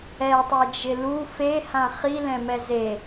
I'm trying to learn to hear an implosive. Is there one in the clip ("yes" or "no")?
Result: no